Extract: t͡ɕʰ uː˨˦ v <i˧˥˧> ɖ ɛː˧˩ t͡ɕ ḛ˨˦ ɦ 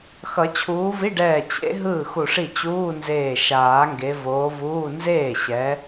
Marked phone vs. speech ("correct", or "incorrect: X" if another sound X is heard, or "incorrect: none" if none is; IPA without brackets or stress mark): correct